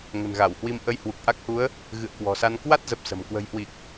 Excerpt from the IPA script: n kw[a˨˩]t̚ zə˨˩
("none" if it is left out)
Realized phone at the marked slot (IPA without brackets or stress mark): a˦˥